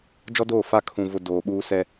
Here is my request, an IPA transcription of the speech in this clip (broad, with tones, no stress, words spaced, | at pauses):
d͡ʒɔ˦doː˦˨fa˦˨ kʰũ˨ vʊ˨ doː˨ɓuː˦sɛ˦